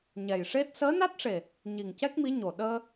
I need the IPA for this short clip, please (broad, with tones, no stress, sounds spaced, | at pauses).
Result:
ɲ ɛ˨˩ j ʂ e˦˥ t̚ s əː˧˥ n a˦˥ t̚ ʂ e˨˩ | ɲ i˨˩ ŋ c ɛ˦˥ k̚ m i˧˥ ɲ o˨˩ ɗ əː˧